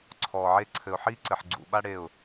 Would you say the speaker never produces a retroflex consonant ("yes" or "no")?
no